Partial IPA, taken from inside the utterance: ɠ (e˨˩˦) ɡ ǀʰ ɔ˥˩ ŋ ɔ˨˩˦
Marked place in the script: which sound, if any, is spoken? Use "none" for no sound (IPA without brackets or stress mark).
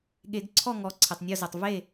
e˨˩˦